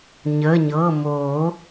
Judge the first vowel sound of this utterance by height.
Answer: mid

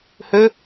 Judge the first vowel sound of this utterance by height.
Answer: mid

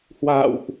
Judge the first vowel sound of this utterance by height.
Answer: low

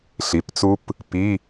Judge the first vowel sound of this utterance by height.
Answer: high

